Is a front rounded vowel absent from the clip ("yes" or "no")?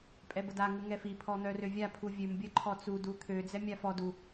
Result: no